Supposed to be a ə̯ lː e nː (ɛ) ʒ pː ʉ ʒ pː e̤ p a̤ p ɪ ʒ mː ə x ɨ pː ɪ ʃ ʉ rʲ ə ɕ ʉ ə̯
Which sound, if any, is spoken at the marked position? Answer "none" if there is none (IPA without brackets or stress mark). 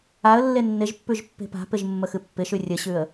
ɪ